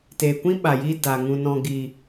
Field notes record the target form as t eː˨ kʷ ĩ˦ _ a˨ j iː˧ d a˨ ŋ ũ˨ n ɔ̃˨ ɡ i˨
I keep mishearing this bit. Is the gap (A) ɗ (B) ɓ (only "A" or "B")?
B